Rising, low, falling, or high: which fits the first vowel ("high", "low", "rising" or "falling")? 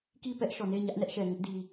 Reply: falling